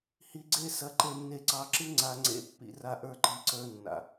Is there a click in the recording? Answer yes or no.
yes